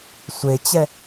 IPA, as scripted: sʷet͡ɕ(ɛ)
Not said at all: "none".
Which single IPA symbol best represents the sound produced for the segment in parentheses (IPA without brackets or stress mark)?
ɛ